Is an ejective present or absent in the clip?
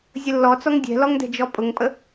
present